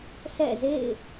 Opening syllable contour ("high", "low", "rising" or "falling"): falling